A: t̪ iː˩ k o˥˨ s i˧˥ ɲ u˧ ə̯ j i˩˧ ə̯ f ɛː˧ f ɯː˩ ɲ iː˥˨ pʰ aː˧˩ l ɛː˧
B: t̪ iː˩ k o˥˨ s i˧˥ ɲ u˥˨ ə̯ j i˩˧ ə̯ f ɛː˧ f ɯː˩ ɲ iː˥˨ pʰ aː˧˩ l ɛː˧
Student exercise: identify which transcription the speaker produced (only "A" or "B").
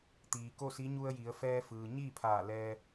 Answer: A